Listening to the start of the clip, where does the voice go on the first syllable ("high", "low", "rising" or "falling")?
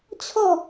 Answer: falling